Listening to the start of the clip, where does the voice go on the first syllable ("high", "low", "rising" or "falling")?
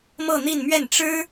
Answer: falling